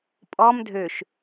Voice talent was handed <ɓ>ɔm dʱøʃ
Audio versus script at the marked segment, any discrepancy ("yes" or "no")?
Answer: yes